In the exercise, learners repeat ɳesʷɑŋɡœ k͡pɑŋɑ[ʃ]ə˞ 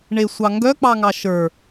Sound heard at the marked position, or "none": ʃ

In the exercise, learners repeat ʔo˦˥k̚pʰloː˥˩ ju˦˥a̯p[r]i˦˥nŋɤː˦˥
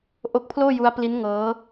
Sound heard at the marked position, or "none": l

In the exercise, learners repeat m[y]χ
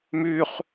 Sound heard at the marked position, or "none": y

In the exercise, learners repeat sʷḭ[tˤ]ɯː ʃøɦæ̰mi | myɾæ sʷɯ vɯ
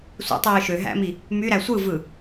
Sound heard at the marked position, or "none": tˤ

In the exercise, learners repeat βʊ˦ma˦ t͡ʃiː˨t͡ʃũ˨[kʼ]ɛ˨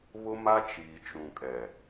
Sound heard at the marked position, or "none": kʼ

